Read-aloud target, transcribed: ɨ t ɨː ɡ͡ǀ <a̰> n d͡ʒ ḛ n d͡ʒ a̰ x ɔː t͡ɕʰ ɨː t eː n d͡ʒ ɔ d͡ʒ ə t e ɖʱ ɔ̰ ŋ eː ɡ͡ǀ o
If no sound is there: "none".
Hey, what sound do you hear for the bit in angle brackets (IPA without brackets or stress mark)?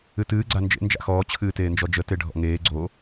a